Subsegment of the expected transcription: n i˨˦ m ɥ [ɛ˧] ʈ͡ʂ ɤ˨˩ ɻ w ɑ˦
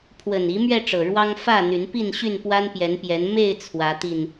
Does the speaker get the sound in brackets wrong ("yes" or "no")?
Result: no